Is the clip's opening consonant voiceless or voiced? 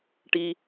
voiceless